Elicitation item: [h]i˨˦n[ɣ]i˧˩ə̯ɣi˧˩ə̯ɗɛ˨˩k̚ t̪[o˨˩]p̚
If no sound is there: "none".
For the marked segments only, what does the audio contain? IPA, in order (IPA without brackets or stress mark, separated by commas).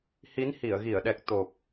h, h, o˨˩